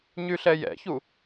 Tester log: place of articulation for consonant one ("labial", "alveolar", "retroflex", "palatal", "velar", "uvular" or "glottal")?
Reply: palatal